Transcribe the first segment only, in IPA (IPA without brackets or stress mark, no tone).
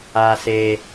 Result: a